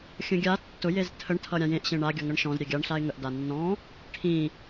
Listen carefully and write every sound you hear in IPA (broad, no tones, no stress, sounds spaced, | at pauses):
xʲ ə̃ ɡʲ a tː ʊ j e z tʰ ə ɳ tʰ ʌ ɾʲ ã j ẽ ʔ ɕ ẽ ɳ a ɡʲ ʌ ŋ ʌ ɳ ʃ ɔ̃ z ɾʲ e ɡʲ a ɳ ɬ a ɪ̯ ŋ ə ʔ d a nː ɔ̃ | ʈʰ ĩ